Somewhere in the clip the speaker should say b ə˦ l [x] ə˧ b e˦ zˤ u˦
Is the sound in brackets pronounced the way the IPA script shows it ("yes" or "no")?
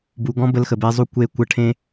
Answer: yes